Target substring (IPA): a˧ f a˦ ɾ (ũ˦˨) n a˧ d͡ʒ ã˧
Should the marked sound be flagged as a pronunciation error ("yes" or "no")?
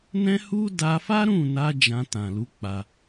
no